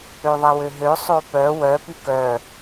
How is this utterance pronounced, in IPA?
ø ðˤ ɛ w ø ɦ ø sˤ o p œ w œ p y k œ

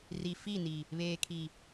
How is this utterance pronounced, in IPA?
r i˨ f i˦˨ n i˨ | β eː˨ kʰ i˨

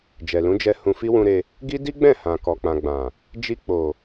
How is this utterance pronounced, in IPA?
d͡ʒ ɛ˨ l ũ˨˦ d͡ʒ ɛ˧ h ũ˧ f i˦ w ũ˧ ɾ e˧ | ɡ i˦ d i˦ ɡ͡b ɛ̃˦˨ h ã˨ k ɔ˨ k͡p ã˨ ɡ͡b ã˨ | d͡ʒ i˧ k͡p o˨

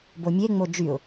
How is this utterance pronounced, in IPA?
b o mʲ e ŋ͡m o d͡ʒ y ʊ̯

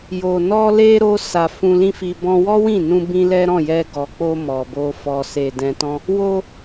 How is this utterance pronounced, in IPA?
j o˨ n ɔ˧ l e˧ ɾ o˧ s a˨ f ũ˧ l ĩ˦ f i˧ b ɔ̃˧ w ɔ˦ w ĩ˦˨ n ũ˧ b ĩ˦ l ɛ˦ ɾ ɔ̃˦˨ j ɛ˧ ɡ ɔ˨ k͡p o˧ m ɔ˨ b o˧ f ɔ˨ s e˨ d ɛ̃˧ t ɔ̃˦ | w o˧

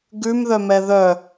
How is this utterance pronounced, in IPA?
ɡ ʉ m ð œ m ɛ ð œ

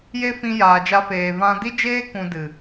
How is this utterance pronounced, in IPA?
j e˦ f ĩ˧ j aː˨ d͡ʒ a˧ f eː˨ v ã˧ d i˦ d͡ʒ eː˦ k ũ˧ d ɨ˨

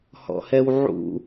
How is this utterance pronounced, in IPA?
h ɔ̰ h ɛ w ʕ ṵ

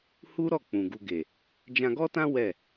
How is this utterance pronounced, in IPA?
h u˦ ɾ ɔ˦˨ k͡p ũ˨ ɡ u˨ ɡ e˨ | d͡ʒ ã˧ ɡ ɔ˦ t ã˦ w ɛ˦˨

